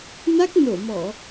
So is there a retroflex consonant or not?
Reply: no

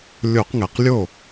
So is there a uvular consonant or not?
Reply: yes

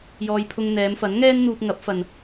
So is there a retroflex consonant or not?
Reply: no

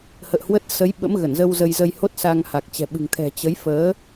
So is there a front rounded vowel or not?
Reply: no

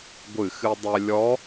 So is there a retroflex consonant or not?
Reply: no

